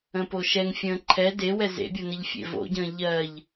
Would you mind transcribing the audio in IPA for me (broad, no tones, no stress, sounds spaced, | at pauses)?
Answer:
ə̃ p o ʃ ɛ ŋ fʲ ə̃ː ǃʰ ɛ d e w ɛ z ḛ bʲ o n ə ʎ fʲ ḛ v o̰ ɟ ə̃ː ʎ ɜ ʎ